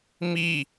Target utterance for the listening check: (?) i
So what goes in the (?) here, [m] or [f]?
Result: m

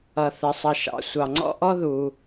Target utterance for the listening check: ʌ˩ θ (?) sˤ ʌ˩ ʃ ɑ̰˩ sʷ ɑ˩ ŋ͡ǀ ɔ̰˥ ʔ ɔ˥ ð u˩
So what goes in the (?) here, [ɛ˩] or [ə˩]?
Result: ə˩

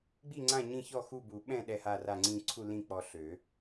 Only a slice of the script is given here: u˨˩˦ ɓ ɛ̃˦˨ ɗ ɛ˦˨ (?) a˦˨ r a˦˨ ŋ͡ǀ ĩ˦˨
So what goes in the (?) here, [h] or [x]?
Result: h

